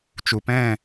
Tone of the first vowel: low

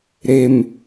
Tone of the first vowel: low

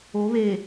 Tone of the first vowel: rising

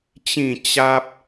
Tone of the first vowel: falling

